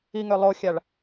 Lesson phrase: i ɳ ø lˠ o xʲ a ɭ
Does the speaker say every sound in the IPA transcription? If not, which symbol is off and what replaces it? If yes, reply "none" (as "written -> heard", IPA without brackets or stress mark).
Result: ɳ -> ŋ